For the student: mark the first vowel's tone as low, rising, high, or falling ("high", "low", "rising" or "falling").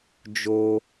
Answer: high